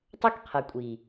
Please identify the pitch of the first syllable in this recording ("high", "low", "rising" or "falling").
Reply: high